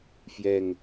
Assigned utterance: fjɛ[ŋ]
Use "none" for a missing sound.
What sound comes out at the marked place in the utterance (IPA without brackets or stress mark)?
ŋ